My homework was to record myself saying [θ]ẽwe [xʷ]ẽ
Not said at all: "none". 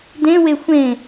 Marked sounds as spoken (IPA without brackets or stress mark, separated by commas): d, xʷ